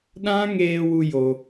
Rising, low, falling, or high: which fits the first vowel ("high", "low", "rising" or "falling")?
high